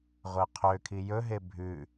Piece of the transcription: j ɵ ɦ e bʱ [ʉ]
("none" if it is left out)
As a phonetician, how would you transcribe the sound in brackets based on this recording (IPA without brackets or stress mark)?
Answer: ʉ